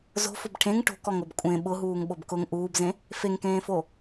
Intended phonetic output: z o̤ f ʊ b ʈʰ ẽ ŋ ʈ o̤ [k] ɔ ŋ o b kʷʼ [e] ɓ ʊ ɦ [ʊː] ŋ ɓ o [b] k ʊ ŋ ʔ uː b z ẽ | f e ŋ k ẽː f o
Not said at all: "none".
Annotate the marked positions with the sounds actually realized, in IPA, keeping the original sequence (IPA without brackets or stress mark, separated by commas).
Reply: k, ẽ, uː, b